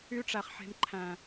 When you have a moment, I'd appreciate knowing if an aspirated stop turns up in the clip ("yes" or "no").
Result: yes